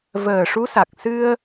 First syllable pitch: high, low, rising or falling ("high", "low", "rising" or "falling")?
low